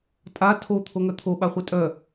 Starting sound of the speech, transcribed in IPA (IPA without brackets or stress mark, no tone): tʼ